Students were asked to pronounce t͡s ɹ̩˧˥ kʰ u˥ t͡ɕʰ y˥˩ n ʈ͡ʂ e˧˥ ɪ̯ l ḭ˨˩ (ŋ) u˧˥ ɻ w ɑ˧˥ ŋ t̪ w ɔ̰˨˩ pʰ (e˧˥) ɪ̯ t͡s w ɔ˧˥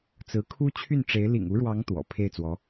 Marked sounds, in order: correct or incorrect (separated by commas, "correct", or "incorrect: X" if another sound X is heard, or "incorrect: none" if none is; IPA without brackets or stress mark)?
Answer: correct, incorrect: e˥˩